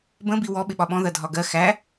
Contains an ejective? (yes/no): no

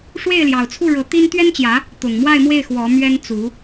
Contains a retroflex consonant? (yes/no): yes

